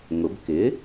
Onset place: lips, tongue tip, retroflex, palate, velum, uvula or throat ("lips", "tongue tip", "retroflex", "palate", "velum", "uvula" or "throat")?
velum